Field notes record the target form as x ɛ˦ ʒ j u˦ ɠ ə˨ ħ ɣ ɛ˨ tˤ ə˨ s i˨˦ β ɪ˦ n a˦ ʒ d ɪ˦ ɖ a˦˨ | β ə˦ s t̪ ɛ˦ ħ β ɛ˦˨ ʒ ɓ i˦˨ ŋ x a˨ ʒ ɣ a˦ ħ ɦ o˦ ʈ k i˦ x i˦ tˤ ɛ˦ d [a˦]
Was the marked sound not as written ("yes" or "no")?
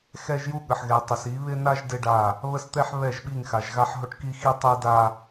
no